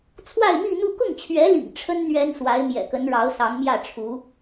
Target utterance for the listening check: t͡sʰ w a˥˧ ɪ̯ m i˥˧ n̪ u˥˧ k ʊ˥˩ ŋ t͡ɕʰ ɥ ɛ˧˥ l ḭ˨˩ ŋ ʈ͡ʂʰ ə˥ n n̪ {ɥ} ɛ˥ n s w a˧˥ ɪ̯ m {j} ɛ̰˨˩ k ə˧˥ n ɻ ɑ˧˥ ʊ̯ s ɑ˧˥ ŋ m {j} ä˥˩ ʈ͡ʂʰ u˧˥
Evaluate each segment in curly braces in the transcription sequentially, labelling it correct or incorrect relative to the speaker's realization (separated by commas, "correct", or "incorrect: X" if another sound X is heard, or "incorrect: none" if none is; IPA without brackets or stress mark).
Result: correct, correct, correct